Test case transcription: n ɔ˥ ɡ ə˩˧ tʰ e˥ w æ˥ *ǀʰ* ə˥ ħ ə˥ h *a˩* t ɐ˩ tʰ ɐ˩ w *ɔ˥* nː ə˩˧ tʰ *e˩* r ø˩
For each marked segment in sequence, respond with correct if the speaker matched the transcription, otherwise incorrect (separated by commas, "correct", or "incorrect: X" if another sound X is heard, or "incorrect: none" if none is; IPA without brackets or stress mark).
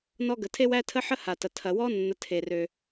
incorrect: tʰ, correct, correct, correct